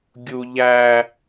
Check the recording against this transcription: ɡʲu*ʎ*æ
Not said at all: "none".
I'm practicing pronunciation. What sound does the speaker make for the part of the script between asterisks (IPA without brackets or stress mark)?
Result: ʎ